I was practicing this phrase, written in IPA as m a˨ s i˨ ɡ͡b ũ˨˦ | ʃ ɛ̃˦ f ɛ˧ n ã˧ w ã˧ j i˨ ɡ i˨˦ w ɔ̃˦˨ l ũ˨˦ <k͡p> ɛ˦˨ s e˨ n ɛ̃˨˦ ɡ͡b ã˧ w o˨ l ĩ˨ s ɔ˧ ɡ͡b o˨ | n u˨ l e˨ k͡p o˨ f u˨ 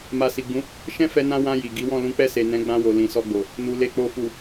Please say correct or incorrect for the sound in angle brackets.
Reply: correct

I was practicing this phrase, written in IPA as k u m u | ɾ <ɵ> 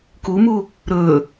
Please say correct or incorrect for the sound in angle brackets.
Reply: correct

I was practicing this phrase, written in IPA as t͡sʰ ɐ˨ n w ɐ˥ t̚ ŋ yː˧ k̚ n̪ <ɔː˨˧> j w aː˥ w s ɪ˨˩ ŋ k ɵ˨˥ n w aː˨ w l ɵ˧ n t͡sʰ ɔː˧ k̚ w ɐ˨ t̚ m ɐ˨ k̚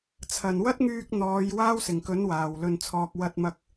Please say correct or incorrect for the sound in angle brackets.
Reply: correct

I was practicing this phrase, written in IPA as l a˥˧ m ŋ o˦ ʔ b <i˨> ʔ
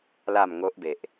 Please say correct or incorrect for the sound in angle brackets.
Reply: incorrect: e˨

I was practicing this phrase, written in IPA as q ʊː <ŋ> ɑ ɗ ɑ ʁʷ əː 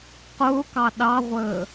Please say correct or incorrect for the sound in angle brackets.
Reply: incorrect: k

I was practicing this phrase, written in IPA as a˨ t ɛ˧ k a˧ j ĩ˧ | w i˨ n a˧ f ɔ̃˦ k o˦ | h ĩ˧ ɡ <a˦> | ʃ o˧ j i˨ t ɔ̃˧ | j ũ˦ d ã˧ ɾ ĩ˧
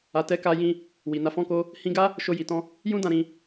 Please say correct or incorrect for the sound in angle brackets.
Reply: correct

